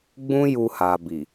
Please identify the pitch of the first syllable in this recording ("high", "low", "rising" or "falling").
high